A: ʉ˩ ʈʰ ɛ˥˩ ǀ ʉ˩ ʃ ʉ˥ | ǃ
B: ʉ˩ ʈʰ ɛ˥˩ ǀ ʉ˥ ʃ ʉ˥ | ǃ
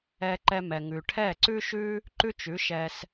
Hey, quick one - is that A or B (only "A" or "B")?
B